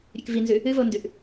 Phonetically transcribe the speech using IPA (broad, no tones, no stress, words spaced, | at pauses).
ɾʲʉkvinzʉ | ɨvondʉʔ